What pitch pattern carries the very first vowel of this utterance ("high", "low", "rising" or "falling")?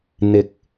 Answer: low